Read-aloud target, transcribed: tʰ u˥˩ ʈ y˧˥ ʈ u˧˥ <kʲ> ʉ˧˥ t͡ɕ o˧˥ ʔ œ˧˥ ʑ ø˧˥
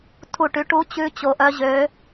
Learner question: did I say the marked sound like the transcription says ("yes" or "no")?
no